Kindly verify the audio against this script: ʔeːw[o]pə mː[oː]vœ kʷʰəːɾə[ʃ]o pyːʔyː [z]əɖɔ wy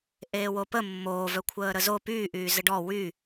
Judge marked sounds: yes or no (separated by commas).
yes, yes, no, yes